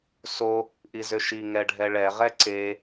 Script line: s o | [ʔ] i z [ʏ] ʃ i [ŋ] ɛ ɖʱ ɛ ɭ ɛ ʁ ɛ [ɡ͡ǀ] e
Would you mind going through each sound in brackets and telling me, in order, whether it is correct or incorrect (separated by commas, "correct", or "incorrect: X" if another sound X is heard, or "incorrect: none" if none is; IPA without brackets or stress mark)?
correct, correct, correct, incorrect: ǀ